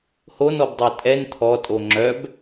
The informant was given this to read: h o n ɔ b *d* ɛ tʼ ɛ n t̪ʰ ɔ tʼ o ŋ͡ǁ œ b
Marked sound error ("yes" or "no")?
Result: yes